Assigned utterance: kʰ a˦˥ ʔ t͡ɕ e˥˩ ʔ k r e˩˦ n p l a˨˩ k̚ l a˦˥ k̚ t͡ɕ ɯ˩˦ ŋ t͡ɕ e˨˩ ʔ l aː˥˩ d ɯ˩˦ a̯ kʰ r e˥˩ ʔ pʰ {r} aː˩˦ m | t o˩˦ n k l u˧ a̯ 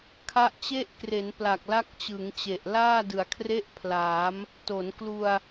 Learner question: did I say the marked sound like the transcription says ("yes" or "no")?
no